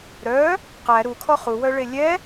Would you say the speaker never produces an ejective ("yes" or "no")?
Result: yes